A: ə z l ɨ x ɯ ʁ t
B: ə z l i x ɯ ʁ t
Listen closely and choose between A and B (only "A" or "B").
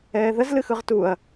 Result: A